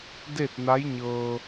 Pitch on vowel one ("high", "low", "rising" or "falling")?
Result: falling